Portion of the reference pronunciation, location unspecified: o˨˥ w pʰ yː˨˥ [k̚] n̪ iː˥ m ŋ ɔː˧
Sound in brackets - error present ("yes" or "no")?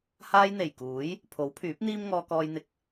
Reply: yes